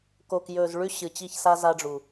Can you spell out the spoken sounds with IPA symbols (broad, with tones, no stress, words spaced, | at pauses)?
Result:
ko˨kjɵ˨z ɭʉ˦ ɕɨ˨t͡ɕi˦˨çsa˦ za˦ɖ͡ʐu˨